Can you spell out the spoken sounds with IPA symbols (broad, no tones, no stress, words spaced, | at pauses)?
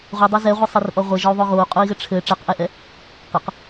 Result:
ʁʷidˤɛ zɛʁʷisˤirʔɔ ʁʷɘʒɔu̯ðˤo ɣou̯qʼui̯ɣɘ ʈ͡ʂʰɘ ʈ͡ʂɛqʔɛʔɛ | qɘq